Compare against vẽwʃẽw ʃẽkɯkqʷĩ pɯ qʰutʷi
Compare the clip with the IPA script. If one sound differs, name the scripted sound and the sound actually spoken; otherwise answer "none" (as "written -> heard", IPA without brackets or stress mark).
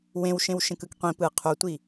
v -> w